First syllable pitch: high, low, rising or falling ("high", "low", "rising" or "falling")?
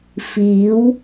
rising